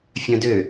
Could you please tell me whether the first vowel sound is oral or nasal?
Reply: nasal